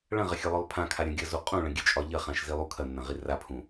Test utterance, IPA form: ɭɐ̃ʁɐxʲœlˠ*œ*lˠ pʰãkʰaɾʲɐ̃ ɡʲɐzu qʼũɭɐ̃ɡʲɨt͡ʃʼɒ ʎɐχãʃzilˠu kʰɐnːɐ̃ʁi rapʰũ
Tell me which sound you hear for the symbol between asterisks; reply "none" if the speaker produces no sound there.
œ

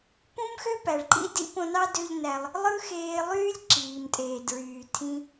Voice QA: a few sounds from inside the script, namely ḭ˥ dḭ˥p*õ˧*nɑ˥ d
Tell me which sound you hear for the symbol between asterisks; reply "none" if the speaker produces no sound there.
õ˧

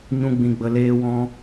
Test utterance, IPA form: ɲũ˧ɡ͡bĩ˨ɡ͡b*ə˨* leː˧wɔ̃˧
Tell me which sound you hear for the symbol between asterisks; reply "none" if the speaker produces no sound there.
ə˨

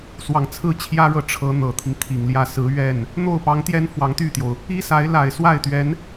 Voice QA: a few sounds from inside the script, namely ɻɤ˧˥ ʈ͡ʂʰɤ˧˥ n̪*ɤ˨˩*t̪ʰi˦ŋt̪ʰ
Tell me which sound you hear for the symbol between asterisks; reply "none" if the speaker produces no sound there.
ɤ˨˩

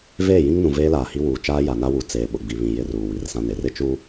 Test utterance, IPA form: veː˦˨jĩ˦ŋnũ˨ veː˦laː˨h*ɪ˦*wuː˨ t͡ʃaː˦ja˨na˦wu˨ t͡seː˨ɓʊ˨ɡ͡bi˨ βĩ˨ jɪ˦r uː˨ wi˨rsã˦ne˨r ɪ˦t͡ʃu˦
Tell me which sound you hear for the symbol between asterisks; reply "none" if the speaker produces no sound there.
i˦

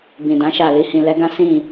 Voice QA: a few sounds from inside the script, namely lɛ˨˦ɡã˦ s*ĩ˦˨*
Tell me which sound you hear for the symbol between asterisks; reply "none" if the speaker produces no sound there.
ĩ˦˨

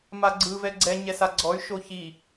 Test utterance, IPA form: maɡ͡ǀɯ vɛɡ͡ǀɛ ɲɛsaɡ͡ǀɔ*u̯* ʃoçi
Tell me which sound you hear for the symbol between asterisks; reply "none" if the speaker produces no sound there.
y̯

